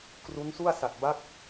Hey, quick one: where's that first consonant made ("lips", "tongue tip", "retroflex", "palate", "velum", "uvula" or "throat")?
velum